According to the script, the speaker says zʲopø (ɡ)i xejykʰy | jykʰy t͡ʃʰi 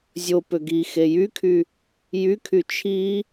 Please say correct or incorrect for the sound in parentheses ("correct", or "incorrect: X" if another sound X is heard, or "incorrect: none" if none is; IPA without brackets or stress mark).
correct